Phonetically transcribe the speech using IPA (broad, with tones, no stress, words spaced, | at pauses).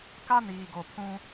ka˦niː˨ ɡo˨pʰũ˦